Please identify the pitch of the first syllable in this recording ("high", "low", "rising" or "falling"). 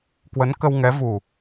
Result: rising